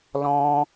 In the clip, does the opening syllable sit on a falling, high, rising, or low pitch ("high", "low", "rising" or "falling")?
high